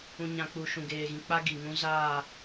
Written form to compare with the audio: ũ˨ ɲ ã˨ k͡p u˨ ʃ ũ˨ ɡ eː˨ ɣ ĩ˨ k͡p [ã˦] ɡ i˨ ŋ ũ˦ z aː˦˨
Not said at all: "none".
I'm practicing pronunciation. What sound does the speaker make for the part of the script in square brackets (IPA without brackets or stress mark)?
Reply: a˦